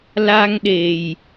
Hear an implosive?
yes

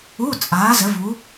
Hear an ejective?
yes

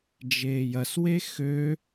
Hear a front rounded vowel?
yes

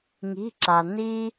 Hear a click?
yes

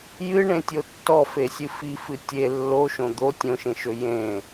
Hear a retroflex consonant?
yes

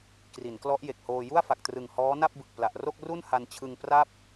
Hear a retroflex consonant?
no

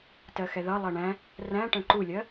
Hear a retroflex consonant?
yes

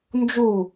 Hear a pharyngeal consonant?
no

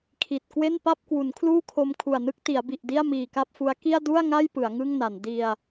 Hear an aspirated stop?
yes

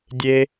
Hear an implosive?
no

